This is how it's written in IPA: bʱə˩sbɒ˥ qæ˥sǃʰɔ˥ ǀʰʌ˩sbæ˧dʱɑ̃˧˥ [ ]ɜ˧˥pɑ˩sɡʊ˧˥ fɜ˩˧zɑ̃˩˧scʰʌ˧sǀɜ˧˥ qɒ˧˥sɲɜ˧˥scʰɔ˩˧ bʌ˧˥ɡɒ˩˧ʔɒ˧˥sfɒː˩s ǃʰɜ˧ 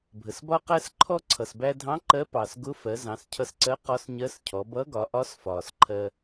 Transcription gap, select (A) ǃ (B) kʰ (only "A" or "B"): A